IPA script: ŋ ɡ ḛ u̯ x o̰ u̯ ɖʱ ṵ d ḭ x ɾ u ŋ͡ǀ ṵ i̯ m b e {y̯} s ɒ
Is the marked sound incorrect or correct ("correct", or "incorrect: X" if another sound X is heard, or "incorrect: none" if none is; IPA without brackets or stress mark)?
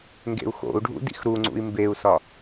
incorrect: u̯